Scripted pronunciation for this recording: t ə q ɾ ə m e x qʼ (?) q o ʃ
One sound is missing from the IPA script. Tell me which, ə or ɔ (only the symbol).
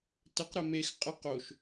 ə